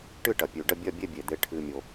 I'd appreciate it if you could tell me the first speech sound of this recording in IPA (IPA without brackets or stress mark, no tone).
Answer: ʈ